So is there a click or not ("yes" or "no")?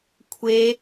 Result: no